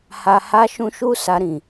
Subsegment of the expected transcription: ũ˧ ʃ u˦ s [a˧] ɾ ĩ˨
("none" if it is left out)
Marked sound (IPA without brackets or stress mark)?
a˧